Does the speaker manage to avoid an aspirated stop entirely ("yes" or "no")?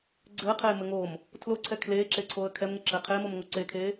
no